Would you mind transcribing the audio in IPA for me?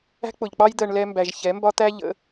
æ̤˦ k͡p ʊ˨ ʎ k͡p ɑ˦ j d̪ ɜ˧ ɳ l ɛ˦ m b æ˧ ʒ ç ɛ˨˦ m b ɒ˦ t̪ æ˦ ʎ ə̰˨˦

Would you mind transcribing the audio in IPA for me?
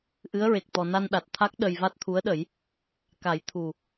ʔ ɨ˧˥ ə̯ ɹ e˨˩ k̚ t̪ ɔ˨˩ n a˧ n ɗ a˨˩ t̚ t̪ʰ a˦˥ k̚ ɗ ə˧ j v a˦˥ t̚ t̪ʰ u˧˥ ə̯ ɗ ə˨˩˦ j | k a˨˩˦ j t̪ʰ u˨˩

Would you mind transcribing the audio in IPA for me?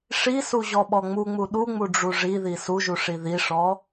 ʂ i s u ʑ ɔ ɓ ɔ ŋ͡m u ŋ͡m u ɗ u ŋ͡m u ɖ͡ʐ u ʐ i ð i s u ʒ u ʂ i ð i ʂ ɔ

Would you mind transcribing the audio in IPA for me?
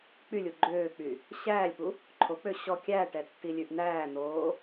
k͡p y lʲ u ɡ͡ǃ øː k͡p y | ɕ æː lʲ p u | ǃʰ o k͡p ø ɕ ɔ kʲ æ ʈ ɛ tː i lʲ ʉ ʔ n̪ æː n̪ oː

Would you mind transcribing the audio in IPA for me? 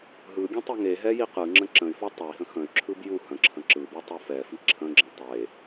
ɦ ɯ ɡʲ ə̃ tˤ i ŋ e ɦ ɛ j i q ɯ ŋ͡ǁ ə̃ ǁ ə̃ y̯ f ɔ tˤ ə i̯ ɦ ə̃ x ə̃ y̯ ǁʰ ɯ b j u h ə̃ ǁʰ ə̃ ǁ ɯ b u tˤ u f ɛ f i ǁʰ ə̃ ɡ͡ǁ ə̃ tˤ e

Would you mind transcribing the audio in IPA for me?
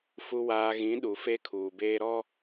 f u˨ w aː˨ ɣ ĩ˨˦ ɗ u˨ f e˦ kʰ uː˨ b eː˦ ɾ ɔ˦

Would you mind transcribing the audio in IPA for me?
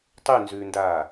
tˤ ʉ n z ʉː n d aː

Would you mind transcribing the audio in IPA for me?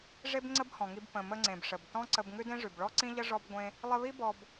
ʐ e˥ b ŋ͡ǀ ə˥ b h ɔ̃˩ ŋ i˧ b p ə̃˩ m ə˧ ŋ͡ǀ ẽ˩ b ʂ ə˩ b t ɔ̃˥ ǀ ə˧ b ŋ ʉ˥ d ẽ˥ ʐ ʉ˩ b ɭ ɔ˥ ǀ ĩ˥ ʎ ə˥ ʐ ɔ˥ b ɡʷ ẽ˥ | lˠ ə˧ β i˥ b ɔ˧ b

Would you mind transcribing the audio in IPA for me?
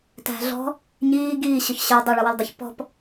t æ̤ ɮ ɔ̤ | ɲ iː ɡ iː ɕ ʊ ç ɕ ə˞ dˤ ə ɭ ʌ w ʊ l dˤ ə ç p ɔ̤ p

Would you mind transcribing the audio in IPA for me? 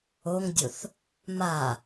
o ŋ dʲ o θ | m a

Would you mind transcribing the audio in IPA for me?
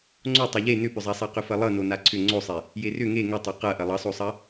ŋ͡ǀ o tˤ ʌ ʎ e n ʏ p ʏ zˤ a sˤ a q ʏ f ɐ lˠ ʌ n o n a ǀʰ ʏ ŋ͡ǀ o sˤ e | j e r ʏ ŋ e ŋ ʏ tˤ ɐ q ɐ ʔ ɐ lˠ ʌ sˤ o sˤ ɐ

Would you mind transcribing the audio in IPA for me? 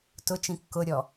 t ʊ t͡ʃ ĩ kː ʊ ɾʲ ɔ

